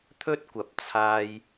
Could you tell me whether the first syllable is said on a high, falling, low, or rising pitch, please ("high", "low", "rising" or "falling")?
high